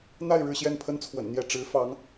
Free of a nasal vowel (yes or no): yes